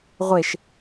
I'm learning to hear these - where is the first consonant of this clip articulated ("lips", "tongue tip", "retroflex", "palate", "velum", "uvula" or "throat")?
uvula